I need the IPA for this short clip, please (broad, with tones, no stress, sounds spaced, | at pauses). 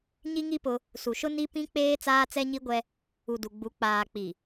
ɲ i˦ ŋ i˦ p ʊ˦ | s u˨ ʃ ʊ˦ n i˦ p ĩ˦ k͡p eː˦ t͡s aː˦ t͡s ɛ˦ ɲ i˦ ɡʷ ɛ˦ | u˨ d u˨ ɡ͡b u˨˦ k͡p aː˨ k͡p i˨